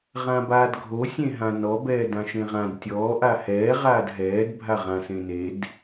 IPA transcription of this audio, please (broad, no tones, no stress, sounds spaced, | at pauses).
ʁ ã b aː d ɡʱ o sʲ ẽ ɦ ã n ɔ b ɛː d ã ʃ ẽ ʁ ã d tʲ ɔː ʔ a h ɛː ʁ aː d ɦ ɛː d bʱ a ʁ ã s ẽ n e d